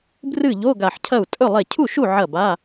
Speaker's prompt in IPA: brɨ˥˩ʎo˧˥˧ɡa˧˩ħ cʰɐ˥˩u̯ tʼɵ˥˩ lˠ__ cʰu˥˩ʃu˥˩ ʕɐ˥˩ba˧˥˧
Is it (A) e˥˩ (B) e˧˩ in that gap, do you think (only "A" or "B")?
A